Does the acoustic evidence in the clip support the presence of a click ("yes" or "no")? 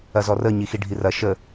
no